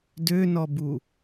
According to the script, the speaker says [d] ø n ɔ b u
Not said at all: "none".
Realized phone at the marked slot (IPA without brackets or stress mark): d